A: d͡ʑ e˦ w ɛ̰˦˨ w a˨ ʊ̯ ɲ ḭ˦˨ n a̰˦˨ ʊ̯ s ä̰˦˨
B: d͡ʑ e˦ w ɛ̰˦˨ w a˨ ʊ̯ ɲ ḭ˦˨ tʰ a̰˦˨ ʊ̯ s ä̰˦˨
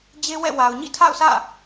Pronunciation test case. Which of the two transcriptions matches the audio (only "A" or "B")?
B